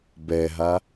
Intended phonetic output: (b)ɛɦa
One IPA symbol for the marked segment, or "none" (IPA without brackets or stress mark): b